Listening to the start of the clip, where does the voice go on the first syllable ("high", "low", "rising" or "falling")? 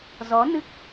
rising